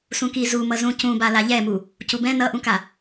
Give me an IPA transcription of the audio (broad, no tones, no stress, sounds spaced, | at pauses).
s ũ k i z u m ʌ z ũ c ũ b a l a ʎ ɛ m u | c u b ɛ̃ n ʌ ʔ ũ k a